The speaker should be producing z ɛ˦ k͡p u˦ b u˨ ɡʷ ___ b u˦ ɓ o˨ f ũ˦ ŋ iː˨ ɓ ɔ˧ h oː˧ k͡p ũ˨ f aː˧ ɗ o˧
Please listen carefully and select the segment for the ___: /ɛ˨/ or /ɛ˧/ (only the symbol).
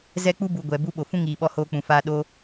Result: ɛ˨